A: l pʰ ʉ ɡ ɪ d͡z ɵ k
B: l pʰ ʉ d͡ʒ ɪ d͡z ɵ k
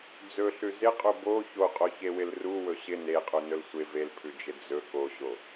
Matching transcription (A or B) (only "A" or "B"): B